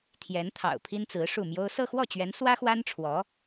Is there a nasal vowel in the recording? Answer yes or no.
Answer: no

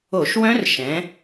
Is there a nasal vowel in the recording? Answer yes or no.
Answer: yes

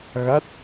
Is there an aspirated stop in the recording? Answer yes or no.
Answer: no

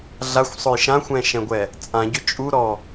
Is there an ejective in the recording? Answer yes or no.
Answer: yes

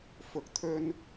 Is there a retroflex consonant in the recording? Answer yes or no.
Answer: no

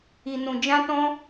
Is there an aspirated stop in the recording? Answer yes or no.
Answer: no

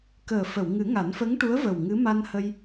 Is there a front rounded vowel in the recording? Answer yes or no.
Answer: no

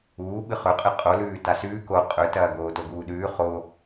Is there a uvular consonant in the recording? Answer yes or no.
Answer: yes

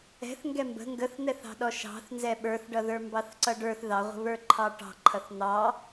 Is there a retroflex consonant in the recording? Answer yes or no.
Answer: yes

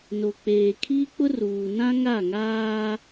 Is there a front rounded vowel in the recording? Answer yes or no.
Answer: no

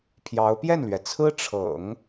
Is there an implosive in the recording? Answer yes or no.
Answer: no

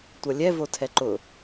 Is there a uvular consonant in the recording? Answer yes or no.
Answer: no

